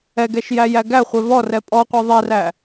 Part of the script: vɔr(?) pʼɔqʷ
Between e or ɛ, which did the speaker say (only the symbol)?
ɛ